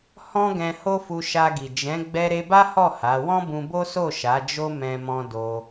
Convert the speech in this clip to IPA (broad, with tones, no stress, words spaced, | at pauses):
hɔ̃˦ɡɛ̃˧ ho˦fu˧ ʃa˧ɡi˨ d͡ʒɛ̃˨˦ ɡ͡bɛ˧ɾe˧ba˦hɔ˦˨ ha˨˦ wɔ̃˦bũ˧bo˦so˦˨ ʃa˨˦d͡ʒo˦ mɛ̃˦mɔ̃˦ do˧